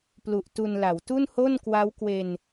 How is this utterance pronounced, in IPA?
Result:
p l u˨˩ ʔ t u˧ n l a˩˦ w t u˥˩ n h o˥˩ n k w a˦˥ w k w e˧ n

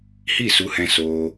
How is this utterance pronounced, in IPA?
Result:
h i˦˨ s u˧ h ɛ̃˧ s oː˧

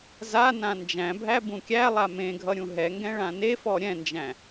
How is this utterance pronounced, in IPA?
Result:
z a n ã n d͡ʒ æ̃ bʱ æ b ũ kʲ æ lˠ a m ẽ ɡʱ ʌ ɾʲ ũ ɦ ɛ ŋ ɡ ɛ̃ ɭ ã n e f ɔ ɾʲ ɛ̃ n d͡ʒ æ̃

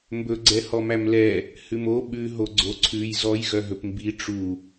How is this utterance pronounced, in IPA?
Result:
m b ɵ ɡ͡ǀ ɛ h ɔ m æ m l ɛ | h ʉ m o ɓ ʉ ɦ o ɡ͡ǀ o ǀʰ ʉ j z ɔ j ɣ œ ɦ ɵ p m b i ʈ͡ʂ u

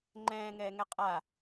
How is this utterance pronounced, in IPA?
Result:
ŋ͡ǃ ɛ̃ː ŋ ɛː ŋ ɛ qʼ a

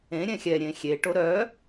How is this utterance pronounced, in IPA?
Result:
ẽ ɾʲ ɛ̃ xʲ ɛ ɾʲ ẽ xʲ e ʈ o ɾ œ

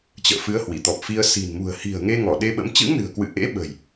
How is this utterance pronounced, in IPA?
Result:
t͡ɕ ə̰ː˧˨ f ɨ˨˦ ə̯ h w i˧˩ t̪ ɔ˨˩ p̚ f i˧ ə̯ s i̤˨˩ n m ṳ˨˩ ə̯ h i̤˨˩ ə̯ ŋ e˧ ŋ ɔ˧˩ ɗ e˧ ɓ ə̰˧˥ m t͡ɕ ɨ̰˧˥ ŋ n ɨ̤˨˩ ə̯ k w ɨ̰˧˨ ʔ ḛ˧˥ ɓ ə̤˨˩ j

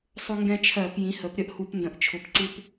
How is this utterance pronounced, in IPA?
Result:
sˤ ʊ˦ ŋ ɡ ɛ̃˦ t͡ʃʰ ɜ˧˩˧ p j ĩ˩˥ h ə˩˥ p ɾʲ ə˦ ʔ h u˧˩˧ p n d ə̃˩˥ ʔ t͡ʃʰ ʊ˩˥ p ǀ u˦ p

